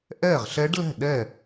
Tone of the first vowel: falling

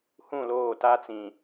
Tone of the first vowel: falling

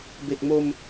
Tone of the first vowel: low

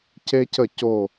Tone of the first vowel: high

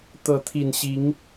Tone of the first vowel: rising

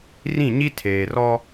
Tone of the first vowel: falling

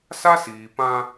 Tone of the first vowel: high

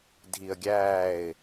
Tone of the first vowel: low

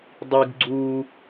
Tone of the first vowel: high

